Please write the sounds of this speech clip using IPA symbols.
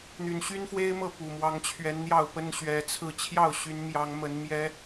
n̪y˨˩nɕy˦nfwe˦ɪ̯mɤ˥˨ pu˨˩mwɑ˨˦ŋt͡ɕʰɥɛ˨˦nn̪jɑ˥˨ʊ̯ pə˦nɕɥɛ˨˦t͡sʰɹ̩˥˨ t͡ɕʰjɑ˥˨ʊ̯ɕy˨˦nmjɑ˨˦ŋmə˨˦n mjɛ˦

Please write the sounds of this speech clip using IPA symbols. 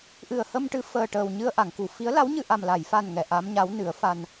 ʔɨ˨˩ə̯hə˧mʈɨ˧˥ fəː˨˩ʈəː˨˩w ɲɨ˧ə̯ʔa˨˩˨ŋku˨˩˨ fi˧˥ə̯ la˧˥wɲɨ˧ʔa˨˩m la˨˩˨jfa˨˩n ŋɛ˨˩˨ʔa˧˥mɲa˧˥w nɨ˨˩˦ə̯ fa˧n

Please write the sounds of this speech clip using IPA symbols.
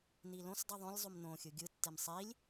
nilõsdˤɯ ðˤõlʲ zˤumnõxʲɯ ɡʲɯtːem sˤilʲ

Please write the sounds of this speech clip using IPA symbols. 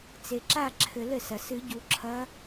t͡se˩ǁa˦˨ ǁʰɘ˨˩˦lɘ˩sɐ˩ sɨ˨˩˦ɟu˨˩˦ ǁʰɐ˧˥

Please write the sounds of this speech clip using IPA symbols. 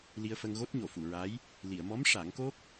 li˧ə̯fə˧ŋ ɣo˦˥t̚ɲo˨˩˨fu˨˩˨ɹa˧˥j | li˨˩˨ə̯mɔ˧˥m ʂa˨˩˦ŋko˦˥k̚

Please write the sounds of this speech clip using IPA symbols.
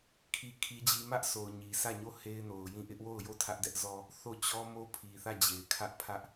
kʰi˦kʰi˦d͡ʑi˦ mä˦ʔsʰo˨ʊ̯ ɲi˨sʰä˦˨ɲo˦˨ he˦ɪ̯no˨ʊ̯jĩ˦˨ ʔɪ˦ʔwo˦˨ʊ̯jo˦˨ tʰä˦ʔdɛ˦ʔzɔ˦ | θo˦˨t͡ɕɔ˦mo˦pʰi˨ θä˦˨d͡ʑe˨ɪ̯kʰä˦ʔ pʰä˦ʔ

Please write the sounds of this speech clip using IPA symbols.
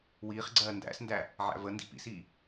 wiːχɡ͡ǀɜː ndæ̰sndæ | ʕæ̰və ndḭpḭsiː

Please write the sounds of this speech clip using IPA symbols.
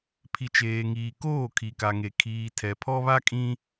pʰi˨t͡ʃeː˨ŋiː˨koː˦˨ kʰi˨ka˨ŋe˨ kʰiː˨tʰɛ˨pʰɔ˦βa˦ kʼĩ˦

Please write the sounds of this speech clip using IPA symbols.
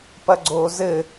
pɐɡ͡ǀozɘ

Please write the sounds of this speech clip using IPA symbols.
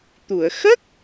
t̪u˨˩˨ə̯ xə˦˥k̚

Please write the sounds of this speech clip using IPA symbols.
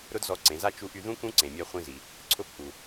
ɾʊ˥dzɔ˧˥ǀẽ˩˧za˥ t͡ʃu˧˥ʔy˧ðũ˥ kũ˥ǀẽ˩ mʲa˧ χʷĩ˧zi˩ | ǀʰʊ˧˥p ʔu˩

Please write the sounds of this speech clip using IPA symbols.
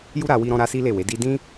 ju˦ɾa˧wi˧ɾɔ̃˧ ɾa˦si˦ le˦˨we˨˦di˦ dĩ˦

